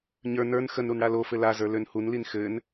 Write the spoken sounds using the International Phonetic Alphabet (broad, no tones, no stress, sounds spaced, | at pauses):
ɲ ə˞ n ə˞ n x ə n ɾ u n ɽ a l o f ɘ l a z ə˞ l ø n h u n l i n x ɘ n